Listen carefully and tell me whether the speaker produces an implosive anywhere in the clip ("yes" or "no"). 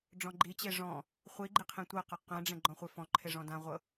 no